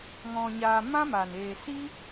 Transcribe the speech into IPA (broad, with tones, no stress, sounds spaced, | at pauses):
ŋ ɔ̃˧ ɲ aː˧ m ã˦ m aː˨ n eː˨ s i˦